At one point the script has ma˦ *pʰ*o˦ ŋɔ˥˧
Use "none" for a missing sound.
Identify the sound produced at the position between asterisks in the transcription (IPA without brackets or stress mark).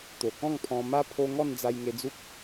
pʰ